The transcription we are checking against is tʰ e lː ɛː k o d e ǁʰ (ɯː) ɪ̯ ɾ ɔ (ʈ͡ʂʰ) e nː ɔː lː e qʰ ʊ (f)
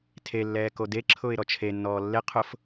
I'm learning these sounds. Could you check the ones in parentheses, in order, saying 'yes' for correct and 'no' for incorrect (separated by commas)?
no, no, yes